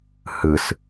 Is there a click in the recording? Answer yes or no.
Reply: no